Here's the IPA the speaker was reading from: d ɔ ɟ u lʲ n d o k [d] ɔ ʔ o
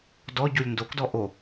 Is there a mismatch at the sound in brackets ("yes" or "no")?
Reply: no